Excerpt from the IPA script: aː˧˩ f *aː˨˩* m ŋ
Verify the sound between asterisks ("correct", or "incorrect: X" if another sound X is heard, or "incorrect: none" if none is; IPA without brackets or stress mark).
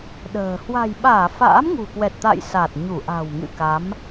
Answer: incorrect: a̰ː˧˥